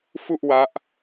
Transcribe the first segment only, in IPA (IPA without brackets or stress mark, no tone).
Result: f